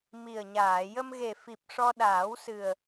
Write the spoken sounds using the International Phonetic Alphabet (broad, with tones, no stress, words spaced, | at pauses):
mi˨˩ə̯ɲaː˨˩˨ jə˧m ɣe˨˩fi˨˩p̚ ʂɔ˧ ɗaː˨˩˦wsɨ˨˩ə̯